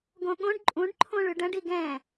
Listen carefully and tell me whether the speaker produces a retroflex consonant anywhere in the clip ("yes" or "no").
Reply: yes